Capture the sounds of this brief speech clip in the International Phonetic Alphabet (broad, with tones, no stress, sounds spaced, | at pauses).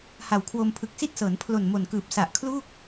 h a˨˩ w kʰ w o˧ m pʰ ɯ˨˩ k̚ s i˥˩ t̚ s ɤː˩˦ n pʰ l o˨˩ n m o˨˩ n k ɯː˨˩ p̚ s a˨˩ ʔ kʰ l uː˥˩ k̚